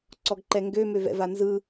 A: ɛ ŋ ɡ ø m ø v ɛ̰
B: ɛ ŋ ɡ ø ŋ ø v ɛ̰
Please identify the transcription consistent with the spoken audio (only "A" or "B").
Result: A